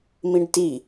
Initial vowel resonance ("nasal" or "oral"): nasal